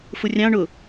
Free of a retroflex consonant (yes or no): no